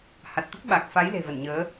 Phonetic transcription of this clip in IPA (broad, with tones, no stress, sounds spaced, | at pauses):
h a˨˩ t̚ t̪ ə˦˥ p̚ ɓ a˨˩ k̚ f a˨˦ j l e̤˨˩ v ə˧˩ n ɲ əː˨˦